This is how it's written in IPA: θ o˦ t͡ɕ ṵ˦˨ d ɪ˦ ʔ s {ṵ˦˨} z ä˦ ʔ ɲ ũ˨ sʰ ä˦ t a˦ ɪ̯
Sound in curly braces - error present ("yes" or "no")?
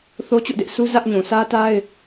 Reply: yes